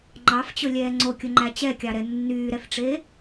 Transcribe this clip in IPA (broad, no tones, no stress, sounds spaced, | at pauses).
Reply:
ŋ͡ǃ ɑ f t͡ɕ ɵ lʲ ɛː ŋ͡ǀ o kʲ ɵ ŋ͡ǃ æ t͡ɕ ɛ kʲ ɑ ɾ ɛ nː yː ɾ ɛ f ʈ͡ʂ e